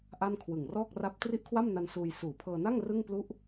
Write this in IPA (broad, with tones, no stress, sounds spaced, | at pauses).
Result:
ʔ a˥˩ n kʰ w ɯ˨˩ ŋ r ɔː˥˩ k̚ r a˥˩ p̚ t r i˥˩ ʔ kʰ w a˥˩ m n a˧ n s uː˧ j s uː˨˩ pʰ ɤː˧ n a˥˩ ŋ r ɯ˥˩ ŋ p l u˥˩ ʔ